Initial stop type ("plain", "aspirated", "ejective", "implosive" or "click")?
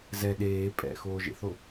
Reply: implosive